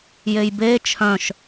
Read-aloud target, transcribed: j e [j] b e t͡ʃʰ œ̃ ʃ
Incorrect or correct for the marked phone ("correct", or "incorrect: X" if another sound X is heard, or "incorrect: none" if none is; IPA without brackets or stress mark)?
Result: correct